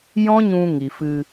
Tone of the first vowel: high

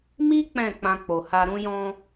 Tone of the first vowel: high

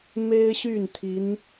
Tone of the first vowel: high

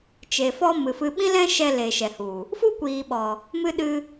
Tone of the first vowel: low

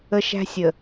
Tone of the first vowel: high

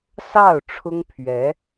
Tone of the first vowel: falling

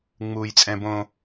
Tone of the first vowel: low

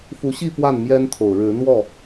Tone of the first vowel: rising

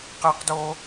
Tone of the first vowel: high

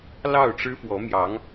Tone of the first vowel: falling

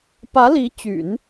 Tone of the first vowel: rising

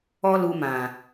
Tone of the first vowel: high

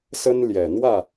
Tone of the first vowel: high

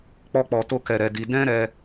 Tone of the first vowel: high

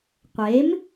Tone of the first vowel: rising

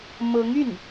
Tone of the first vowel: rising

